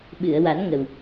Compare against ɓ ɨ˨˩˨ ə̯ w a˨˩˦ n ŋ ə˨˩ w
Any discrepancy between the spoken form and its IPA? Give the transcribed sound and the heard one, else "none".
none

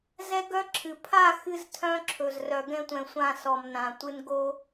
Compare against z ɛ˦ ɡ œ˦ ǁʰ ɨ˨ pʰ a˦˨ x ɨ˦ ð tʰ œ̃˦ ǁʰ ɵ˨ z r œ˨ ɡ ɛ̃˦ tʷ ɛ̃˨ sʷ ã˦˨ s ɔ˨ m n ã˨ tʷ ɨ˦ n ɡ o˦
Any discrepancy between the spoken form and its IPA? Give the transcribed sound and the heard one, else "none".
ð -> z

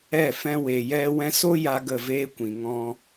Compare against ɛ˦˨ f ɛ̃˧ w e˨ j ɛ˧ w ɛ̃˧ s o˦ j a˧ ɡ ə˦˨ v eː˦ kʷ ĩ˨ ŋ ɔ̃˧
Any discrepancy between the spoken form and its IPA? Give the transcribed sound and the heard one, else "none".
none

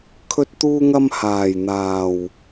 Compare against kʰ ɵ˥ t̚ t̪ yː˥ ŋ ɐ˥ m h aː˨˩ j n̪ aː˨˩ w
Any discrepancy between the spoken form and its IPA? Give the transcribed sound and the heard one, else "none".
yː˥ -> uː˥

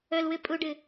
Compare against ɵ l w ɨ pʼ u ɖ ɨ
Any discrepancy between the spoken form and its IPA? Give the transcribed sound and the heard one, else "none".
none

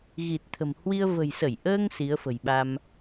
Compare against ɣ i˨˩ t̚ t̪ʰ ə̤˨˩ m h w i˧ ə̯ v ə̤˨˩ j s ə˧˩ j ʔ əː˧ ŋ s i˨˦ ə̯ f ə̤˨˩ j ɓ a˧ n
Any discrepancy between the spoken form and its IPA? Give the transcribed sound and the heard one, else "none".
n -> m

